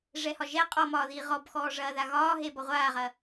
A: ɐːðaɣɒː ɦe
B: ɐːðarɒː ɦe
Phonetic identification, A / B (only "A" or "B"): A